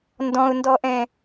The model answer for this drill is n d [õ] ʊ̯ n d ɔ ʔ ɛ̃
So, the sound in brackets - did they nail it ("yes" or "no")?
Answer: no